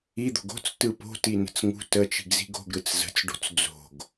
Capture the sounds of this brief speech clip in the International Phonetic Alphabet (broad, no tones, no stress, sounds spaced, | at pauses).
i d̪ o̤ ɡ o̤ t͡s t ɯ p o̤ t i n ə̤ t͡s ŋ ṳ t ə t͡ʃ i̤ ɡ z i̤ ɡ o̤ ɡ ɾ ɯ t͡s z ə̤ t͡s ɖ o̤ t͡s d͡z o̤ ɡ